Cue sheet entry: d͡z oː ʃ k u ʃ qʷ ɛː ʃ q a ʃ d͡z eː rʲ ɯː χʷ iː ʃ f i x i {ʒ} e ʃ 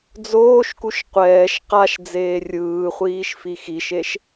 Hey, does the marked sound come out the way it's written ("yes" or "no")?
no